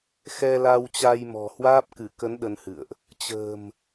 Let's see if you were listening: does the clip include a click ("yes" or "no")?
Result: no